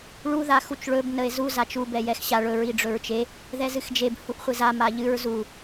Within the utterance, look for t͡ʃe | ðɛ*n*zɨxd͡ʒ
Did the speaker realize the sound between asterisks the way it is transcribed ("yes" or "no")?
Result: no